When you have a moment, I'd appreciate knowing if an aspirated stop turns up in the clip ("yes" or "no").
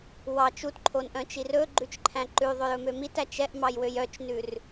yes